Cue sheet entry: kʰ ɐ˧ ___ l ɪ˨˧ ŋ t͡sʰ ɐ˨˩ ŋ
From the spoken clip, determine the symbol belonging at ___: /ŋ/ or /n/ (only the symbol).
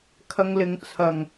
ŋ